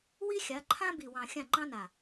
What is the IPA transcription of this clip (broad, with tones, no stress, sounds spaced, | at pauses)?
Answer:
w i˦ xʲ a˨˦ ǃʰ ã˦ b i˨ w ɑ̃˨ xʲ ã˦˨ ŋ͡ǃ ɑ̃˦ n a˨